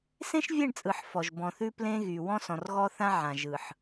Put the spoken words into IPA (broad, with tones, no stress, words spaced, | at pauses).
sẽ˦ʃvʲe˦˨ɳt͡sʼɯ˨ħ fɔ˨ʒbɔ̃˨θʉ˦ plẽ˦ɣy˨ wɔ̃˦sɔ̃˨rɣɔ˦θã˦ ʕã˨ ʒɯ˨ħ